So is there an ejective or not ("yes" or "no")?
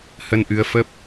no